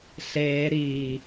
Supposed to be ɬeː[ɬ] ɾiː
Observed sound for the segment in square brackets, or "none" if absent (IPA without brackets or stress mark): none